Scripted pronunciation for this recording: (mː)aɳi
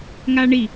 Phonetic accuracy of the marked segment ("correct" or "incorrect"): incorrect